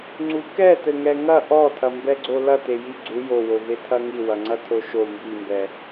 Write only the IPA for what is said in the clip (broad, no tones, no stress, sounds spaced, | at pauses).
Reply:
ŋ͡ǀ u k ɛ t ɘ ŋ ɛ ŋ ɐ ʔ ɔ tʰ ɐ m b ɛ ɡ͡ǀ o l ɐ t e j i ɡ͡ǀ u j o w o v e tʰ ɐ ŋ i w ɐ ŋ͡ǀ ɐ tʰ o ʃ o m b i m b ɛ